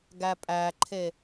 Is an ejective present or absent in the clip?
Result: present